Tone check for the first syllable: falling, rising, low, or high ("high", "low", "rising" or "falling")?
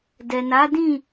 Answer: low